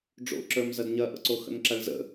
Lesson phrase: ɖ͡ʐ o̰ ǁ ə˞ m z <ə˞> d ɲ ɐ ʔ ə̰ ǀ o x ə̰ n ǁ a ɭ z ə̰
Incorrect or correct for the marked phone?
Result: incorrect: ɐ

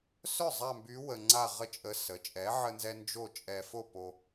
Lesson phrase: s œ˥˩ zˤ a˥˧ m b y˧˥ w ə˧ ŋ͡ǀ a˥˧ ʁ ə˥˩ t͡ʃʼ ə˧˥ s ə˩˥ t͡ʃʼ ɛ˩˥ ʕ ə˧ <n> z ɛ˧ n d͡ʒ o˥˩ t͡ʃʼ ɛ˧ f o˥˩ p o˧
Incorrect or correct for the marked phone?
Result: correct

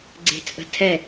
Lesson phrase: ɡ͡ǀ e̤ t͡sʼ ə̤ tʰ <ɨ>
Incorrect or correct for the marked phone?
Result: incorrect: ɛ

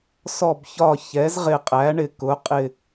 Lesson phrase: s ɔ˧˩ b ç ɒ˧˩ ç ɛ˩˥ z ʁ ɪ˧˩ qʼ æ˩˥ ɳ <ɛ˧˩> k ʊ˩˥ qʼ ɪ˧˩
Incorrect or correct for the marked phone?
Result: incorrect: ɪ˧˩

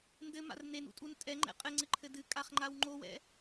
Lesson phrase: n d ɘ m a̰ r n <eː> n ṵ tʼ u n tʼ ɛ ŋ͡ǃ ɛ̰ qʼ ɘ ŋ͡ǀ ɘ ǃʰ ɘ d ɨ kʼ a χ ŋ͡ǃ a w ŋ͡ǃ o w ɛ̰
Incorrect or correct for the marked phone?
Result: incorrect: e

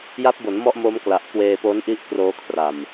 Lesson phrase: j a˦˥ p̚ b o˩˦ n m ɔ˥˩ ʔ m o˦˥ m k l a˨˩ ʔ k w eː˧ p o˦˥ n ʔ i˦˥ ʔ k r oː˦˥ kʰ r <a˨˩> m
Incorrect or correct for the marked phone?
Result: correct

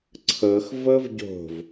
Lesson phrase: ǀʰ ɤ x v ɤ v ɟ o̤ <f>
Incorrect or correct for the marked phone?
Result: incorrect: v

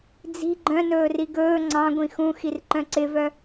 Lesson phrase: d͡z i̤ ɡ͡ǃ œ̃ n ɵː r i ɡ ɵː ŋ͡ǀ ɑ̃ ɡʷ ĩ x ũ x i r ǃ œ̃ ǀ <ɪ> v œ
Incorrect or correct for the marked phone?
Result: correct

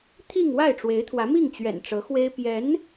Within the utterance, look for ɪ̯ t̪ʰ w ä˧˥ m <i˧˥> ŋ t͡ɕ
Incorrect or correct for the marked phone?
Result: incorrect: i˥˩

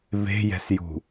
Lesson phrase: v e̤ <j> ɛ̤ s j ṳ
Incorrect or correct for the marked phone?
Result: correct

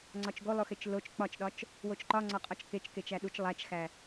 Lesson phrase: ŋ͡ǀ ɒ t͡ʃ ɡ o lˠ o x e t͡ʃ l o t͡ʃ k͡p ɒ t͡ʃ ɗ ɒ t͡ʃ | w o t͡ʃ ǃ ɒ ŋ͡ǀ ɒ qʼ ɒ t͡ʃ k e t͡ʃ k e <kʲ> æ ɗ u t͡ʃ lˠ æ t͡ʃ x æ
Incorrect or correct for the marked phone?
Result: incorrect: t͡ʃ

